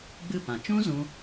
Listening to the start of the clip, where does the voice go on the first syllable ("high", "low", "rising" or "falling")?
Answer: falling